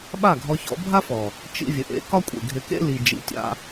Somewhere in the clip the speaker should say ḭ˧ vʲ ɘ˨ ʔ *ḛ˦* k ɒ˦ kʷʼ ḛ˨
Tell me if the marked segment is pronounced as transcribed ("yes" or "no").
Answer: yes